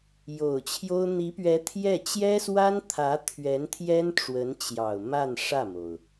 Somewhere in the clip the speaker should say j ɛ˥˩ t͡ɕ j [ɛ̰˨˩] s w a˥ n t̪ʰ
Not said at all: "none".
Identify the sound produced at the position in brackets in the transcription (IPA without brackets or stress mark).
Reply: ɛ˥